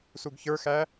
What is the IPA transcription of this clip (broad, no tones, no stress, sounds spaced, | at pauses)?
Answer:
s u ɡ ç ə˞ x æ